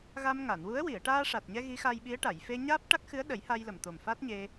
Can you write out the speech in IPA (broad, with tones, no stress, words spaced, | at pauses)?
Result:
ɣa˧mŋa˨˩˨nwu˧˥ə̯ wi˨˩˨ə̯ʈaː˧ʂa˨˩t̚ɲɛ˧ ɣi˧˥xa˧jɓi˧˥ə̯ʈa˨˩˨j fe˧ ɲaː˦˥p̚ʈa˦˥k̚xɨ˧˥ə̯ɗə˨˩˦j ha˧jlə˨˩mt̪o˨˩m fa˦˥t̚ɲe˧